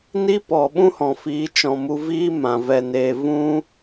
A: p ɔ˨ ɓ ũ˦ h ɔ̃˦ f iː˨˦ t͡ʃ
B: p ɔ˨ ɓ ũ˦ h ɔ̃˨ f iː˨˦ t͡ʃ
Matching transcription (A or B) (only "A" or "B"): B